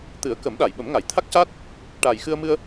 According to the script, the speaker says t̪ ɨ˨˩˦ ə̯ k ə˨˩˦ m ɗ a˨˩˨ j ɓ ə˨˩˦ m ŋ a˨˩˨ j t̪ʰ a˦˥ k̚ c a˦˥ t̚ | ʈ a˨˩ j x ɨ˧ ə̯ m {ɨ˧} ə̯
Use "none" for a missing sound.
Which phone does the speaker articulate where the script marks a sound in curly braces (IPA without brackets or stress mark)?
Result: ɨ˧